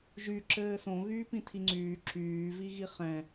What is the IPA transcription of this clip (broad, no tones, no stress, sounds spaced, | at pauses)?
ʒ y ǁ ɘː s õ ɣ yː p ĩ tʰ i ŋ͡ǀ yː ǁ yː v i ɣ i χ ɛ̃